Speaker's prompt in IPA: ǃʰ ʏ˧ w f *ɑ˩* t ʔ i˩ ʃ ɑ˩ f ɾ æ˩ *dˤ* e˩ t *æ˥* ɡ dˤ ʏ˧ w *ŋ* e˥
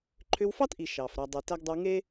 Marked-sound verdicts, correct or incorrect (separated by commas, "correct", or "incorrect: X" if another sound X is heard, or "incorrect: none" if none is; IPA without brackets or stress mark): incorrect: ɑ˥, correct, incorrect: æ˧, correct